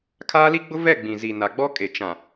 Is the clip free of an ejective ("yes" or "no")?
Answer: no